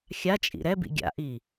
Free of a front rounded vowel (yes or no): yes